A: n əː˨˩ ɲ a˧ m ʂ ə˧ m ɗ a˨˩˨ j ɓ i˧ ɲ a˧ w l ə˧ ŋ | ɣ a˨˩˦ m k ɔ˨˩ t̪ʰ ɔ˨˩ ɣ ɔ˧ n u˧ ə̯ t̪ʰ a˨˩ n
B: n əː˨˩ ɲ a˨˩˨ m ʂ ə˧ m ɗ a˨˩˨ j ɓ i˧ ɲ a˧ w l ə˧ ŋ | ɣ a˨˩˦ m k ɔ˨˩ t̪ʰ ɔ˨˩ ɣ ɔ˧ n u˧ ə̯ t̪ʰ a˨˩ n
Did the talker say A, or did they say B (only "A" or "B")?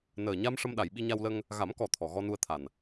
A